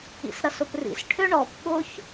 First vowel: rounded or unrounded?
unrounded